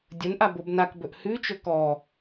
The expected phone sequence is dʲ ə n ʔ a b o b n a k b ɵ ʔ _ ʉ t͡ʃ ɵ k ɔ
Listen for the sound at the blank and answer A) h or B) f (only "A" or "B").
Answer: A